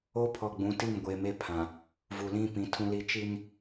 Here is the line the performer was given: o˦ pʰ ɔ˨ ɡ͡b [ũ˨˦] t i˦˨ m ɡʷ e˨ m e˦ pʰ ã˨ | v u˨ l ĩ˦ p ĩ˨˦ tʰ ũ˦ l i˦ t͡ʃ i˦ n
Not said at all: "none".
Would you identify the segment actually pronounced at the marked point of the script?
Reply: ũ˨˦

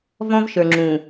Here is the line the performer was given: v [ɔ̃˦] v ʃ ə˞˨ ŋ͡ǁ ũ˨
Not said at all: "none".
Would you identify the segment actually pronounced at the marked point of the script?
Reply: ɔ̃˦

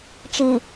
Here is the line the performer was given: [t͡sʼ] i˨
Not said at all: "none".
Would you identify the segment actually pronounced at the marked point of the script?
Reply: t͡ʃ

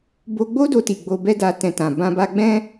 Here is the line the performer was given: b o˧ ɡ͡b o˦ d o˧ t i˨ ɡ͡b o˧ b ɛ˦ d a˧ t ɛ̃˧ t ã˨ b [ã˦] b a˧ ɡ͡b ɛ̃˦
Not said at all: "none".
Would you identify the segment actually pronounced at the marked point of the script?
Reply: ã˧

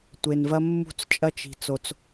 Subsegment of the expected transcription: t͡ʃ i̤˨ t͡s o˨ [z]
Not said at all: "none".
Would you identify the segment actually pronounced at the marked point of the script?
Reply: t͡s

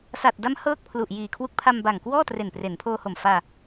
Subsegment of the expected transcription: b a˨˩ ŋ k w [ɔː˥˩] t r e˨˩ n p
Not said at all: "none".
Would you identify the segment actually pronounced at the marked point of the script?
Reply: ɔː˥˩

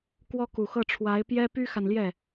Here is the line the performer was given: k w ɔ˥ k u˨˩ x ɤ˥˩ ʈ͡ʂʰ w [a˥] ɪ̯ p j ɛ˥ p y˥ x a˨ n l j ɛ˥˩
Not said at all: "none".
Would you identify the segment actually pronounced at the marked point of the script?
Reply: a˧˥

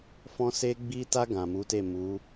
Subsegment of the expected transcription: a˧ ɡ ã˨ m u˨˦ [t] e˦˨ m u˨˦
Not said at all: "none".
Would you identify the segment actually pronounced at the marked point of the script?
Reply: t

